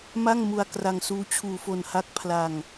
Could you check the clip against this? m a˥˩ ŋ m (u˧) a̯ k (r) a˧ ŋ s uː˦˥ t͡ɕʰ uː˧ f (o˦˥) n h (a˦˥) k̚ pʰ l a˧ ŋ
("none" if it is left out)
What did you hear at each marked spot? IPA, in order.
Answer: u˧, r, o˧, a˦˥

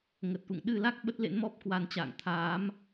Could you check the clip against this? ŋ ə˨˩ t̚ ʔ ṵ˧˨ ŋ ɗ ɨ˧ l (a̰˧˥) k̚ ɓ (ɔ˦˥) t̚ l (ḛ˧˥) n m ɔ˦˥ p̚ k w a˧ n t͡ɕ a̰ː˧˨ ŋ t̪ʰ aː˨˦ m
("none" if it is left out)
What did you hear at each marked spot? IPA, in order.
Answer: a˦˥, ə˦˥, ḛ˧˥

